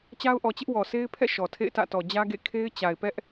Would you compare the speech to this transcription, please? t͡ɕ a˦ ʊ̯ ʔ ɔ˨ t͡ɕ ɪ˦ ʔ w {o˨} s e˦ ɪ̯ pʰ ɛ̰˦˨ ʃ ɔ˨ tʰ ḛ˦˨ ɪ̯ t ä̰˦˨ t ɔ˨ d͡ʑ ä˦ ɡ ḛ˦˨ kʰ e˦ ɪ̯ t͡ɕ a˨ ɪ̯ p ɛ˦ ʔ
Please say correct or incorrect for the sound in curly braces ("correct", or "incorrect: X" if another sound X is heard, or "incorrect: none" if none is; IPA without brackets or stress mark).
incorrect: ɔ˨